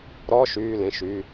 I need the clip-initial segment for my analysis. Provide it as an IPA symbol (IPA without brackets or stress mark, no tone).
ɾ